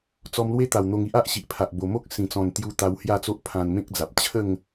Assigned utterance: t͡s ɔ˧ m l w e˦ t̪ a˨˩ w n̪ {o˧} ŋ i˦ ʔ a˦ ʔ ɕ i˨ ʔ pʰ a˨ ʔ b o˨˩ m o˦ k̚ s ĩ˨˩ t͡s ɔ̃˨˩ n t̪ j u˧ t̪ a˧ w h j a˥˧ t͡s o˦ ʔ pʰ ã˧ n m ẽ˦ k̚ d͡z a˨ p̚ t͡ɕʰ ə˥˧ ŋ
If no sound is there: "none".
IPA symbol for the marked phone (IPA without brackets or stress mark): o˧